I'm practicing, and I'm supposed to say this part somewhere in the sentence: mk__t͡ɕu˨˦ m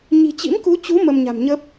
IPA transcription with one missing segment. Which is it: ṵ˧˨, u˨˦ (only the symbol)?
u˨˦